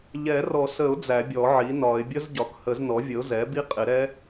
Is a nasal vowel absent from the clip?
yes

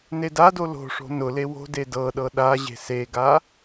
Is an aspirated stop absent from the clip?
yes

